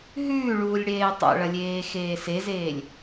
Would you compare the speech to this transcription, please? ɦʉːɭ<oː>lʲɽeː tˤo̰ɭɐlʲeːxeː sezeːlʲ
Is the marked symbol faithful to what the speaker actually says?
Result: no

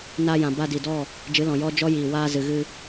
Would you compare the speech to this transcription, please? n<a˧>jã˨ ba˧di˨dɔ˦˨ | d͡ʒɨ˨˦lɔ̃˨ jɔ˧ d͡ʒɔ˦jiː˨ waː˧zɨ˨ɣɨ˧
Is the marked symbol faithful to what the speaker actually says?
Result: yes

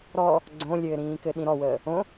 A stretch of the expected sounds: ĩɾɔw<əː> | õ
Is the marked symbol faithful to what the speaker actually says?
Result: yes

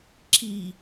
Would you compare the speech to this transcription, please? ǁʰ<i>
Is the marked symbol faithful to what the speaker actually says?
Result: yes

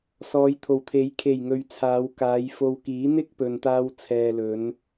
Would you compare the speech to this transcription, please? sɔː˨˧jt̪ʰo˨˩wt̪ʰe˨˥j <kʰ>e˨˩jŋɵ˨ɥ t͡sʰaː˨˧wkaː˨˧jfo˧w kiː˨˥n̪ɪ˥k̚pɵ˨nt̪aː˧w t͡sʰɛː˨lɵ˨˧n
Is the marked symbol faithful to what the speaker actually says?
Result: yes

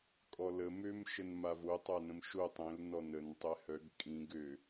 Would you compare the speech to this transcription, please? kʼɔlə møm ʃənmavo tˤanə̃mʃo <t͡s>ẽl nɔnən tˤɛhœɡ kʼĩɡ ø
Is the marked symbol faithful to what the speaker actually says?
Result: no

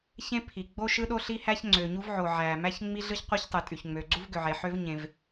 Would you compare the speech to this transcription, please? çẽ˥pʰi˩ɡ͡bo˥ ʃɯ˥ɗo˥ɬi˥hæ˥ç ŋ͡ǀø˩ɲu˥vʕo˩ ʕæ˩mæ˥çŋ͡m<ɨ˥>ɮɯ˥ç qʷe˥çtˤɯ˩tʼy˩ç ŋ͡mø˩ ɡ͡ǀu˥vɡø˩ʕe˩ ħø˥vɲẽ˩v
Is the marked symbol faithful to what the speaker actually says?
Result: no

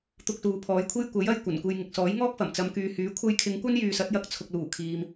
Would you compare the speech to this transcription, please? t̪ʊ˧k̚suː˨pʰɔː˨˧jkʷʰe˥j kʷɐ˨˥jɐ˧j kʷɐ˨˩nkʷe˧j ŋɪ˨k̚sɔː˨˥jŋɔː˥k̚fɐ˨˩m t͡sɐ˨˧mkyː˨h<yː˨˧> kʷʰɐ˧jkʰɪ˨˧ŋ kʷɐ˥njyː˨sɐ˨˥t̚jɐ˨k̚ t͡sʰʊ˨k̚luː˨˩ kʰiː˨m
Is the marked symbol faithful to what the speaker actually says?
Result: no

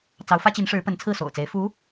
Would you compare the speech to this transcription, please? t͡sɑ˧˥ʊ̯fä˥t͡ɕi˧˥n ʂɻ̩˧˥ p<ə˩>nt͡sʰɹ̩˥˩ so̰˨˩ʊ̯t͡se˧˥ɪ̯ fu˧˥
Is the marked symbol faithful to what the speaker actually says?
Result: no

